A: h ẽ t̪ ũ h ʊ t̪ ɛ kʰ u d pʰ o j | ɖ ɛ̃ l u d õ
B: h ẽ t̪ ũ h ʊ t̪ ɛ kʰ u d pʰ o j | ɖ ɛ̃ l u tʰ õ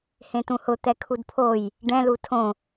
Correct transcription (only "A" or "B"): B